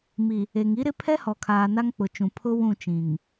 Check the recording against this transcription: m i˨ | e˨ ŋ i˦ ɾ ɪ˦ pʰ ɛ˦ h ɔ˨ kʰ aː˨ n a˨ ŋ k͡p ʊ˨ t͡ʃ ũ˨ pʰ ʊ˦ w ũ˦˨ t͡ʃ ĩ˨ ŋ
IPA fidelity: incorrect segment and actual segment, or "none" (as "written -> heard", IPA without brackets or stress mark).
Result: a˨ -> a˦